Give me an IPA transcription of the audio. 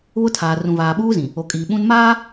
βʊ˦tʰaː˨ rũ˨vaː˨ɓuː˦zĩ˨ | o˨kʼiː˨ɓũ˦n maː˦

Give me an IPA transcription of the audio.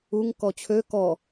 uŋ kɔt͡ɕʰø kɔ

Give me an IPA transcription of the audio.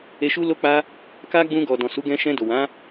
e˧ ʃu˦lo˦k͡pa˦ | ka˦ɡ͡bũ˧ɡɔ˨ dɔ̃˨su˨˦ ɡɛ̃˧ʃɛ̃˧do˨ wã˨˦

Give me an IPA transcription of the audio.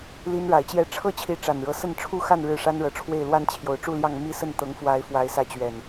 li˦nɻa˨˦ɪ̯t͡ɕjɛ˦ ʈ͡ʂʰɤ˦t͡ɕʰi˨˦ ʈ͡ʂa˨˩nɻɤ˨˦sə˥˨n ʈ͡ʂʰu˥˨xa˥˨n ɻɻ̩˥˨ʂa˦nɻɤ˨˦ʈ͡ʂʰwe˥˨ɪ̯ lwa˦nt͡ɕʰjo˨˩ʊ̯ʈ͡ʂu˥˨ljɑ˥˨ŋ mi˦sə˥˨n t̪ɤ˨˦ŋfwa˨˦ɪ̯ fwa˨˦ɪ̯sä˨˦ t͡ɕɥɛ˨˩n

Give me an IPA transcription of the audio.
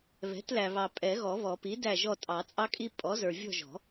βɛ̤˩˥tlæ˨βɑ˨ pʼɛ˨˩˦ɣɔ˨˩˦βɔ˨˩˦ pi˩˥dæ˦˨ ʒɔ˦˨ tʼɑ˨˩˦t͡sʼɑ˦kʼi˦ pʼɔ˩˥zə˞˨ vʲɔ̤˦˨ʒɔ̤˨˩˦

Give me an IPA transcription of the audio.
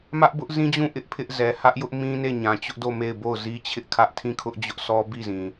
mä˦ʔbʊ˦ʔzĩ˦d͡ʑũ˦˨ ʔɪ˦ʔpʰɪ˦ʔ zɛ˨hä˦ʔjʊ˦ʔ mĩ˦ne˦˨ ɲã˨t͡ɕʊ˦ʔdo˦˨ me˦˨ɪ̯bo˦˨ʊ̯ zi˦ t͡ɕʰɪ˦ʔkʰä˦ʔ tʰĩ˦˨kʰʊ˦ʔ d͡ʑʊ˦ʔsʰɔ˦ bi˦˨zĩ˨

